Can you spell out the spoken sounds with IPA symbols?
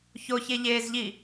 ç o ç e ʎ eː z ʎ i

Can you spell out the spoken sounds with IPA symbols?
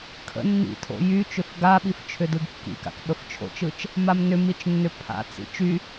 kʰ ə̰ nː ḭ tʰ o̰ j y t͡ʃ ʏ f ɡ a ɓ i f t͡ʃʰ ʏ d ɯ ɡ kː ḭ k a̰ k ɓ ə f t͡ʃʰ o̰ t͡ʃ ɯ t͡ʃ | m a m n ʏ m i t͡ʃ nː ʏ pʰ a̰ t͡s ḭ t͡ʃ y

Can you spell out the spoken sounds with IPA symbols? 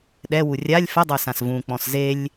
ɗ ɛ w u rʲ a lʲ f ə dˤ œ s ã s v ũ k͡p ɔ̃ s z e lʲ

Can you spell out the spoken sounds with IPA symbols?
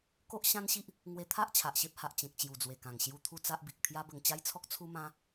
k o˦ ʔ ɕ ã˦ n ɕ i˦ ʔ | ŋ w e˧ t̪ʰ a˦ ʔ t͡ɕʰ a˨ ʔ ɕ e˦ p̚ h a˨ ʔ t͡ɕ ẽ˨ k̚ t͡ɕ j u˨˩ d͡z w e˨˩ k ã˨˩ ŋ ɕ j u˥˧ t̪ʰ u˥˧ t͡s a˦ ʔ b i˨ k̚ t̪ʰ j a˦ b ə˧ ŋ t͡ɕ a˦ j t͡sʰ ɔ˦ k̚ t͡sʰ u˦ m ã˦

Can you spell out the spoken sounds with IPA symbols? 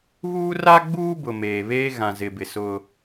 β uː˦ r a˦ ɡ͡b uː˦ b ʊ˨ m eː˨ β eː˦ ɣ ã˨ z ɪ˨ b ɪ˨ s ʊ˦

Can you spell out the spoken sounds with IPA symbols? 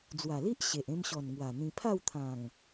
d͡z w a˨˩ l i˦ ʔ ɕ e˨ ʔ ẽ˧ m ɕ ɔ˨˩ n ŋ w a˨˩ n̪ ĩ˧ pʰ a˥˧ w t̪ʰ ã˨˩ ŋ

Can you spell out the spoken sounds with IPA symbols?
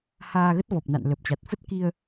h aː˧ ɣ ə˦˥ t̚ v ɔ˨˩ p̚ n a̰˧˨ n l ə˨˩ p̚ t͡ɕ a˨˩ t̚ f ə˦˥ t̚ k i˧ ə̯

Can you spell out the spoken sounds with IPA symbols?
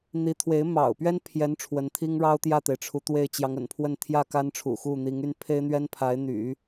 n̪ i˧˥ t̪ʰ w e˧˥ ɪ̯ m ɑ̰˨˩ ʊ̯ p ɥ ɛ˥ n pʰ j ɛ˧˥ n ʈ͡ʂʰ w ə˧˥ n t̪ʰ i˥ ŋ ɻ ɑ˥ ʊ̯ t̪ j ä˥˩ t̪ e˩ ɪ̯ ʈ͡ʂʰ u˧˥ t̪ w e˥˩ ɪ̯ t͡ɕ j ɑ˧˥ ŋ ə̰˨˩ n pʰ w ə˥˧ n t̪ʰ j ä˥˩ k a˥ n ʈ͡ʂʰ ṵ˨˩ x u˥˩ n̪ i˧˥ ŋ y˥ n pʰ e˥ ɪ̯ n̪ ɥ ɛ˥ n pʰ a˧˥ ɪ̯ n̪ y̰˨˩˦

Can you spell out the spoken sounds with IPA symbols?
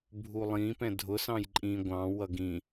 bʱ u lˠ ĩ p ɛ̃ dʱ ʊ s ɑ̃ j ǃʼ ĩ ɡʷ ɑ̃ w ʌ ɡ ĩ

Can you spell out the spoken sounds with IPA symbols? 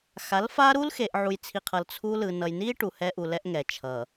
x a˨˦ l f a˦ ɾ u˦ l x e˨ ʔ ʕ u˨ j t͡sʰ i˨ qʰ ʌ˨ l t͡sʰ u˦ l ɯ˨ n ʌ˨ j n i˦ ʈ u˨ h ɛ˦ ʔ u˨ l ɛ˦ ʔ ŋ ɛ˨ t͡ʃʰ ʌ˨

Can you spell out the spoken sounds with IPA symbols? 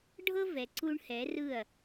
ɖʱ ɤ˦ v ɛ˨ ǀ u˧ ɳ h ɛ˨˦ r ɯ˦˨ ɐ̯

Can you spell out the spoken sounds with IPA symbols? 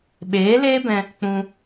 ɓ eː˨˦ l eː˦ b ɛ̃˧ | k͡p ũ˧

